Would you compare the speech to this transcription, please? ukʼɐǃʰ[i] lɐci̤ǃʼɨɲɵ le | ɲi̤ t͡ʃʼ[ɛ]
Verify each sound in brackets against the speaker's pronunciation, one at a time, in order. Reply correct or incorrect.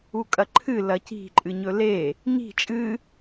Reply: incorrect, incorrect

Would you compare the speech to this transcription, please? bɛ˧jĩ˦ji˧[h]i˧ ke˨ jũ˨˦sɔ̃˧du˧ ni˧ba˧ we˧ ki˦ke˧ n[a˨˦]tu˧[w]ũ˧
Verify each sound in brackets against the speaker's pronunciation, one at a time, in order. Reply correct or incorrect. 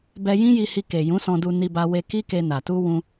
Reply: correct, incorrect, correct

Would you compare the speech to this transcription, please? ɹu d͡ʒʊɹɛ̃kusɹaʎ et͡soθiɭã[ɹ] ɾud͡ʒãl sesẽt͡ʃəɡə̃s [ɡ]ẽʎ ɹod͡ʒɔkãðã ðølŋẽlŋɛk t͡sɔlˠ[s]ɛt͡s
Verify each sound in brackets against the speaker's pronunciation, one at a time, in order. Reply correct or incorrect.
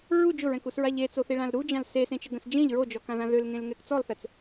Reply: incorrect, incorrect, incorrect

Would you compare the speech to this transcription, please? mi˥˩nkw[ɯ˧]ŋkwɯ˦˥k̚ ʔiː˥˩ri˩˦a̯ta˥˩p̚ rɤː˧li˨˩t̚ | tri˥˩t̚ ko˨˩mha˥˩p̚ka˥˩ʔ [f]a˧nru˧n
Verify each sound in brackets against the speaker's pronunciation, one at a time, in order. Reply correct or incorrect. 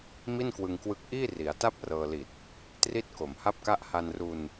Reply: correct, incorrect

